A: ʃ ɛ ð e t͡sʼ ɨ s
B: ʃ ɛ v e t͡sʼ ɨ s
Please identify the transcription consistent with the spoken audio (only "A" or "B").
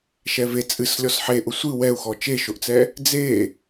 B